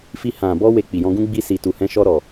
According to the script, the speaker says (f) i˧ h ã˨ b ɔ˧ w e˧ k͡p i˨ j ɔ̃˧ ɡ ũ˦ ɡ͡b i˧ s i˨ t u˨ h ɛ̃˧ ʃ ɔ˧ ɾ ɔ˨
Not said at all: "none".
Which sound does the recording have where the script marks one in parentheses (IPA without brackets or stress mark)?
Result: f